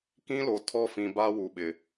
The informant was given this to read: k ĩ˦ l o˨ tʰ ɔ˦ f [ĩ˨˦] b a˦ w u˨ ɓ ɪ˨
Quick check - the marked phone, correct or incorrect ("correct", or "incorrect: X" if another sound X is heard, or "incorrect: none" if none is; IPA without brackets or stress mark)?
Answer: incorrect: ĩ˨